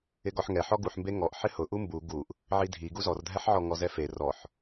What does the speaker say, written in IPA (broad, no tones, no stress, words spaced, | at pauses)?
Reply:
ɪɡɔħŋɛ ħɔɡuħmbe ŋɔʔ ħɪhʊʔu mbu ɡuʔ | ʕidʱi ɡuzɔrdʱɛħʕɔ ŋɔzɛfe rɔħ